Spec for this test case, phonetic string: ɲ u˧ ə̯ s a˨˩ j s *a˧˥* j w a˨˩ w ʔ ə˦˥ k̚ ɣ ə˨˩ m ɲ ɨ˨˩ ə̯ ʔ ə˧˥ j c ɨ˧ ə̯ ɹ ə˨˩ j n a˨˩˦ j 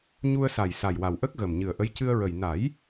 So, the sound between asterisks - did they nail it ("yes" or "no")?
no